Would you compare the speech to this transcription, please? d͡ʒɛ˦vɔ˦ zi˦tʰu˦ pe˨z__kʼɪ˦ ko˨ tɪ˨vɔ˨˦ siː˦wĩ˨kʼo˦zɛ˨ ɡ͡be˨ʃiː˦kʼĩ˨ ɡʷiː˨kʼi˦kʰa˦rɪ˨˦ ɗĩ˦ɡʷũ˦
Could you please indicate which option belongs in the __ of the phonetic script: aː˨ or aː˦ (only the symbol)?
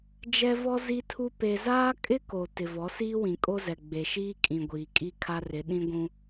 aː˦